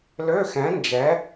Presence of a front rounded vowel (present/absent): present